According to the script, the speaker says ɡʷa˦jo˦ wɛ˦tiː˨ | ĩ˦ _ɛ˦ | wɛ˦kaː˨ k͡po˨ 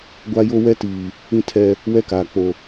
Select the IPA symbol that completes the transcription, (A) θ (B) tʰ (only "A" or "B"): B